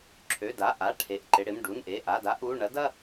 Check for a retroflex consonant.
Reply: present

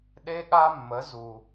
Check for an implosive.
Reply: present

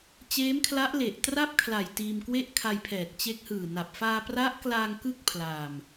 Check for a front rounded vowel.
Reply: absent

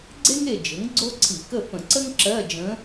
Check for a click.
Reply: present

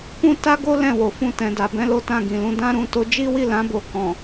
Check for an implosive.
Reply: absent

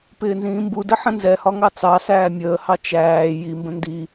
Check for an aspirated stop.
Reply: absent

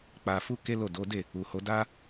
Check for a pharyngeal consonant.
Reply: absent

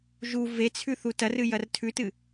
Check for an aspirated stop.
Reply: present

